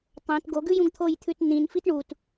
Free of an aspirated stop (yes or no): no